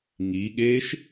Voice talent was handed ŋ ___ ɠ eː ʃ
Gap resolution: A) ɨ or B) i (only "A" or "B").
B